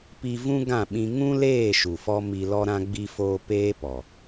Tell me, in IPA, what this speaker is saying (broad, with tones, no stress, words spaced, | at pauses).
pi˧vũ˦ɡã˦˨ɓĩ˧ ŋũ˦leː˦˨ʃu˨fɔ˧ mi˧lɔ˦ɾã˦ ɡ͡bi˧foː˧ peː˦pɔ˨